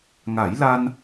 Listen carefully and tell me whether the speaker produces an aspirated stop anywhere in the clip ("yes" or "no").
no